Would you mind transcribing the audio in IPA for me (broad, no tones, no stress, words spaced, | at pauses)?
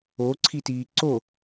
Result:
oǀʰitiː ǀo